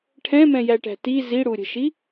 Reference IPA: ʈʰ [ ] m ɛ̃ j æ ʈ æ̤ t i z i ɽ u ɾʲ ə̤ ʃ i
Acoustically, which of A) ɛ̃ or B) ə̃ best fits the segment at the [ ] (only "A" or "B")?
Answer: A